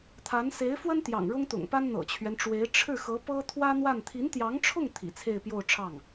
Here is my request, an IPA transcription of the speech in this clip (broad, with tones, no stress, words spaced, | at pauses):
t̪ʰa˧˥n se˧˥ɪ̯fwə˥n t̪jɑ̰˨˩ŋɻʊ˥ŋt̪ʊ̰˨˩ŋpa˥n n̪ɤ̰˨˩t͡ɕʰɥɛ˦nʈ͡ʂwe˧˥ɪ̯ ʈ͡ʂʰɻ̩˥˩xɤ˧˥ pɤ˥ t̪ʰwä˥n̪wa˥˩n t̪ʰi˧˥nt̪jɑ˧˥ŋʈ͡ʂʰʊ˥˩ŋ t̪ʰḭ˨˩t͡sʰe˥˧ɪ̯pjo˥˧ʊ̯ʈ͡ʂʰɑ˥˩ŋ